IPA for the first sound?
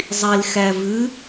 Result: zˤ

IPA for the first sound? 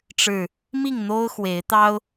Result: ʈ͡ʂ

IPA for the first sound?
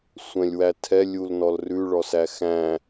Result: sʷ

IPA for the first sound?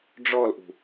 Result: ɖ͡ʐ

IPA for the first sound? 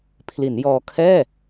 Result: pʰ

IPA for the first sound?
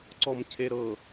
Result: ǀ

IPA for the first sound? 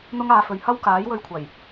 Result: n̪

